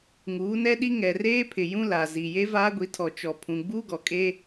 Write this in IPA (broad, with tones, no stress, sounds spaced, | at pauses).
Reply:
ŋ uː˨˦ n ɛ˦ ɗ i˦ ŋ ɛ˨ r eː˦ pʰ ɪ˨ j ũ˦ l a˨ z i˨ j e˦ v aː˦ ɡʷ i˨˦ tʰ ɔ˨ t͡ʃ ɔ˨ pʰ ũ˨ ɡ͡b uː˦ ɡ ɔ˨ kʼ e˦